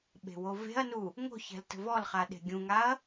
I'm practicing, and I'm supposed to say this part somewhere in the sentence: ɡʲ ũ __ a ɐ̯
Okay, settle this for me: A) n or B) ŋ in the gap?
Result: B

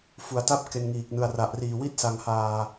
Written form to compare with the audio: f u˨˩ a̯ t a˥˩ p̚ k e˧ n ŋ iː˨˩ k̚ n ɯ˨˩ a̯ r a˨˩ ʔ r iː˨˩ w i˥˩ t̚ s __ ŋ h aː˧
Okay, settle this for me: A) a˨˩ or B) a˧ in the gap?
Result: B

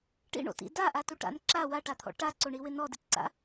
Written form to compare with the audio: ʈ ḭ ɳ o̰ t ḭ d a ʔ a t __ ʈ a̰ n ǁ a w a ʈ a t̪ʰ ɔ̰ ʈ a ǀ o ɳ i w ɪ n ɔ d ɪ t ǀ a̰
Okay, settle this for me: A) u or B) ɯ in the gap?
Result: A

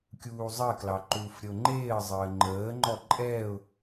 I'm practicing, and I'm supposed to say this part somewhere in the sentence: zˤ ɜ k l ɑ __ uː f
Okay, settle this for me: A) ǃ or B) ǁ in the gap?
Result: A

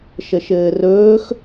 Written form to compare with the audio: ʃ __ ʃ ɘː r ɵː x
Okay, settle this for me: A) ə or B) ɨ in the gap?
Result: A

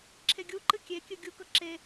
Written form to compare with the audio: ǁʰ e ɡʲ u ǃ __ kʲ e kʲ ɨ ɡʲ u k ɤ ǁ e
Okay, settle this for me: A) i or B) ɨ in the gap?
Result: B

